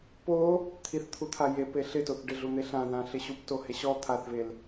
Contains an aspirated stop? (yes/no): yes